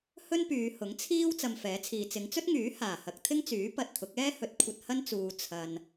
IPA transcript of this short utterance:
h ɵ˥ n p yː˨˧ h ʊ˨˥ ŋ t͡sʰ iː˥ w t͡s ɐ˧ m f ɛː˨˥ t͡sʰ iː˨ t͡s ɪ˨˧ ŋ t͡s ɵ˥ t̚ ŋ yː˨˥ h aː˨˩ h ɐ˨ k̚ t̪ʰ ɪ˥ ŋ t͡s yː˨˥ p ɐ˧ t̚ t̪ʰ ʊ˨˥ k̚ ɛː˥ h ɵ˨ t̚ kʷʰ ɐ˧ t̚ h ɐ˥ n t͡s uː˨ t͡sʰ ɐ˨ n

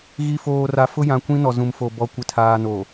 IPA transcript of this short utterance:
ɣ i˨ f oː˨ r a˨ f ʊ˦ j ã˨ kʷ ĩ˦ n ɔ˨ z ũ˨ m f o˨ b ɔ˨ kʷ ɪ˨ tʰ aː˨ n o˨

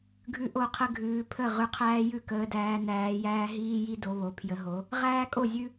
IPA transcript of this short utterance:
ɡʱ ʉ˦ ʔ o˥˩ qʰ ə˦ ɡʱ ʉː˨˦ pʰ ə˥˩ ʁ ʉ˨˦ qʰ æː˦ j ʉ˥˩ k əː˨˦ d æː˨˦ n æː˨˦ j æː˦ ɦ iː˦ j i˦ d o˨˦ β o˨˦ pʰ j ə˨˦ ɦ o˨˦ | ʁ æː˦ kʼ o˥˩ zʲ ʉ˦

